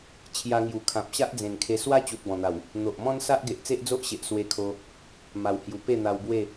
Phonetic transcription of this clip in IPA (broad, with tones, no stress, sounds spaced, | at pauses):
t͡ɕʰ j a˧ ŋ j u˨˩ kʰ ã˨ p̚ ɕ a˦ ʔ d͡z ẽ˨˩ n kʰ e˧ s w a˦ t͡ɕ u˨ t̚ b ɔ̃˨˩ n̪ a˨˩ w | n̪ o˨ ʔ m ɔ̃˦ n s a˦ ʔ ɡ e˨ ʔ t͡s e˦ ʔ d͡z o˦ ʔ ɕ e˨ ʔ s w e˧ kʰ o˧ | m a˨˩ w h j u˨˩ p e˥˧ n̪ a˧ w b w e˥˧